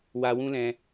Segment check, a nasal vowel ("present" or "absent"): present